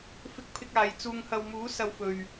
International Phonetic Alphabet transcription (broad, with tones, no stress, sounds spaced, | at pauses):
f ɪ˧ k̚ pʰ ɪ˧ k̚ aː˨ j t͡s uː˨ ŋ h ɐ˨ w m uː˨˧ s ɐ˨ w f ɵ˨ ɥ